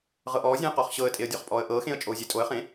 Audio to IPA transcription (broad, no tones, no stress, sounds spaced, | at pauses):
ʁ ɤ ʔ ɔː zʲ ẽ ə̯ q ɔ χ ɕ ɤ ə̯ tʼ e ə̯ dʲ ɔ χ pʼ ɔː ə̯ ʔ ɤː x ẽ ə̯ t͡ʃʼ oː zʲ e tʼ o ə̯ χ ẽ